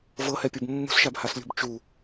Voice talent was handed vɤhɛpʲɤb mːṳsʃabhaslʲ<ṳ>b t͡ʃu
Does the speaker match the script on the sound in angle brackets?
yes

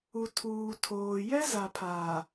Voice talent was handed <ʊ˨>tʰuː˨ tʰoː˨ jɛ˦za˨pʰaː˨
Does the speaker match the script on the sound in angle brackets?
no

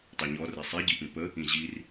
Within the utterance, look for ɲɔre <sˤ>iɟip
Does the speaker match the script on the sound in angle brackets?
yes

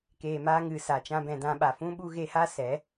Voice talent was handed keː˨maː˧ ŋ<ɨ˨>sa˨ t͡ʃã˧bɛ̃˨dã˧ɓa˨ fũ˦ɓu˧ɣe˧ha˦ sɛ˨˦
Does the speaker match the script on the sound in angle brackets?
yes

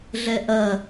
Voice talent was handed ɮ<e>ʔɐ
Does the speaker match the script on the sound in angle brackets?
no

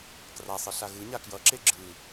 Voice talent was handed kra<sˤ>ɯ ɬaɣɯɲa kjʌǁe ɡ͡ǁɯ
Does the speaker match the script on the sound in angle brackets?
yes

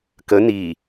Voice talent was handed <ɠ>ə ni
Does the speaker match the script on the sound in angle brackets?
no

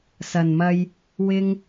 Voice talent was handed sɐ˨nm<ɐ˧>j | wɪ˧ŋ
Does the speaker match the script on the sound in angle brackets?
yes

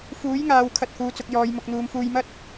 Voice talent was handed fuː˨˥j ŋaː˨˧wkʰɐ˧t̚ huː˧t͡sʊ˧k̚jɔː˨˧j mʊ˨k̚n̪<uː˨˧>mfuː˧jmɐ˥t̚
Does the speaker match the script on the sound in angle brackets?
yes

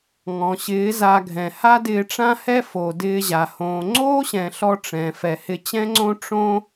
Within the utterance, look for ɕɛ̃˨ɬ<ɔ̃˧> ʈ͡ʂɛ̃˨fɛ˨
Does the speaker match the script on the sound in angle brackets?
no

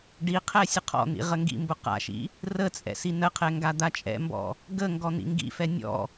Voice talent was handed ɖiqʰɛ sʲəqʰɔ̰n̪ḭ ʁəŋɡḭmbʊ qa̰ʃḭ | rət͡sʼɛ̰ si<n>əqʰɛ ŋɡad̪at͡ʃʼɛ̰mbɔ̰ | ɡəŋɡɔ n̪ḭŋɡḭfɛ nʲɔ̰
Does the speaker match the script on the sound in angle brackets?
yes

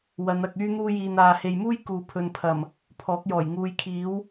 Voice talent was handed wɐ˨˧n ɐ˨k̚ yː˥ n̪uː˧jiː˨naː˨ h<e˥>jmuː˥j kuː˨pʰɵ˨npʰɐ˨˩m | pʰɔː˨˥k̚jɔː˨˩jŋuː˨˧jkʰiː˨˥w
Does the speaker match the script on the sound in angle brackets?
no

